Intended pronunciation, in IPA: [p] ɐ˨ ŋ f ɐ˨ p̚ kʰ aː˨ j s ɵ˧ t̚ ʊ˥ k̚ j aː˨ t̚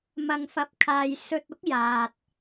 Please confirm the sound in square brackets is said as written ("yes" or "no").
no